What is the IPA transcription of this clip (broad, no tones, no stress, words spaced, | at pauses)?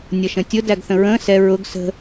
nʲʌʃə̃tʲʊ dæɡθə̃ɹə̃ː sɛ ɹʊɡ sə̤